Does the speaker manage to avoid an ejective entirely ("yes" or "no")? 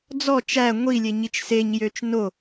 yes